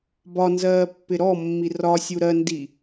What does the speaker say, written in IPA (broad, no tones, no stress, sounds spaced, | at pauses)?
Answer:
b ɒ n z ɜː pː ɪ ɾ ɔ mː i r ɒ sʲ u ɾ ɜ n d i